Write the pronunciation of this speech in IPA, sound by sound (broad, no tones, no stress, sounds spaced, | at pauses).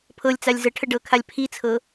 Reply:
pʰ ɤ lʲ t͡s a lʲ z ə ʈʰ ə ɖ ɤ kʰ a lʲ pʰ i t͡sʰ ɤ